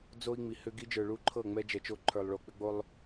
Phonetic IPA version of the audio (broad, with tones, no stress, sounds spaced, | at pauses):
d͡z o˦ i̯ ŋ͡m i˨ h ʏ˦ ɡ i˦ d͡ʒ ə˞˨ ɭ u˦ ǃʰ ɤ˦˨ ŋ͡m ɛ˦ d͡ʒ ɛ˨ t͡ʃ o˦ ǃʰ ə˞˨ lˠ ɭ o˨ k͡p ʏ˦ ɡ͡b o˦ lˠ